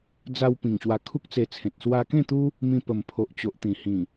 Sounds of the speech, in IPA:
d͡za˧wpĩ˨˩ŋ ɕwa˧kʰu˦k̚t͡se˧t͡sʰẽ˨t̚ swa˧kẽ˥˧t̪u˦ | mĩ˧pə˨˩mpʰo˨ʔt͡ɕo˨ʔ t̪ĩ˨˩hĩ˨˩

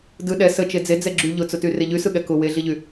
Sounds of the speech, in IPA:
dɯ ɗɛ sə t͡ʃed͡ze d͡zɛɡ͡ǁy ʎʊt͡sʊty reʎysɯ ɠɛkʊ weɮiʎy

